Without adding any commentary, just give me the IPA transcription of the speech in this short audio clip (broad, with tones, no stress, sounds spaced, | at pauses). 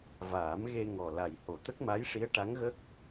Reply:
v aː˨˩˦ m ɣ e˧ ŋ ɔ˨˩ l a˨˩ j h o˨˩˨ t̪ ə˦˥ k̚ m a˧˥ j ʂ i˧˥ ə̯ ʈ a˧˥ ŋ ɣ ə˦˥ k̚